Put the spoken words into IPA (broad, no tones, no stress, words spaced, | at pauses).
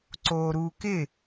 ǀoːɾuːkɪ